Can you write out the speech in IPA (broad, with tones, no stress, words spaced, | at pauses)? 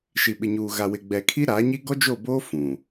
ʃi˨ɓɪ˨ɲuː˨ ɣa˨wɪ˨ ɡ͡bɛ˨kʰi˦ɾaː˨˦ɲi˦ ɡɔ˦d͡ʒo˦˨boː˦ fũ˨